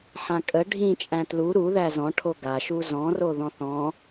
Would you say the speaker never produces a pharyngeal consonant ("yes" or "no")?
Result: no